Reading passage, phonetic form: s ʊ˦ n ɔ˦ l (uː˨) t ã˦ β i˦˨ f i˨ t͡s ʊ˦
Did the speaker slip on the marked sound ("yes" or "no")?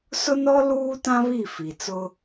yes